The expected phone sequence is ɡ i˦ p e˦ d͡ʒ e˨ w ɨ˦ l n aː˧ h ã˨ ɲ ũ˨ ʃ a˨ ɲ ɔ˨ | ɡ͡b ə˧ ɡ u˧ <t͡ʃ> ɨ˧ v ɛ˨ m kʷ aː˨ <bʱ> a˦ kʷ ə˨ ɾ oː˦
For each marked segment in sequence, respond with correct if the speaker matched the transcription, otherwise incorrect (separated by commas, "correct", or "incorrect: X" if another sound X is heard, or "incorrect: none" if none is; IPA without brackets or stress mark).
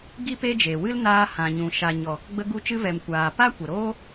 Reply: correct, incorrect: p